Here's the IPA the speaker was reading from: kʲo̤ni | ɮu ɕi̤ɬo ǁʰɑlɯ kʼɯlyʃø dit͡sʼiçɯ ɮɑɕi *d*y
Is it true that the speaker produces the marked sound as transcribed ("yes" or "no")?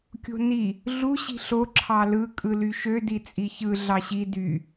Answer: yes